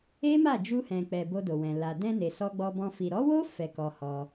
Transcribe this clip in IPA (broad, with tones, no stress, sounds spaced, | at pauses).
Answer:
e˦ m a˦˨ d͡ʒ u˧ h ɛ̃˨ k͡p ɛ˨ b o˧ d o˨ w ɛ̃˨ l a˨ d ɛ̃˧ n e˨ s ɔ˧ ɡ͡b ɔ˧ b ɔ̃˧ f i˨ ɾ ɔ˨˦ w o˦ f ɛ˧ k ɔ˧ h ɔ˧